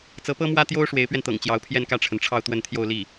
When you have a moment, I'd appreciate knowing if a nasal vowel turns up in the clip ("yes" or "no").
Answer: no